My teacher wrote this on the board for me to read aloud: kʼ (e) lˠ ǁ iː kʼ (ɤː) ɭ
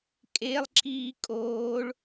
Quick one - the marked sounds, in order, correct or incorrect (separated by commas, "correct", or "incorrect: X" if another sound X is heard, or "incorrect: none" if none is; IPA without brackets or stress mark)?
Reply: correct, incorrect: oː